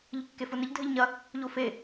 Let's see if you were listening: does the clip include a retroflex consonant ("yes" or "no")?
no